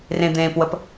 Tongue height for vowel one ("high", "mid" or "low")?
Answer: mid